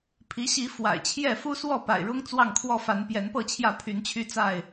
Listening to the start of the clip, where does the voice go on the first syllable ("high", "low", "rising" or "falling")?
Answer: rising